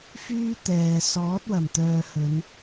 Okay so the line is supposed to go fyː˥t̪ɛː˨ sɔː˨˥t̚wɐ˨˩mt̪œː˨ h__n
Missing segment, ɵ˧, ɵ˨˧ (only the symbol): ɵ˨˧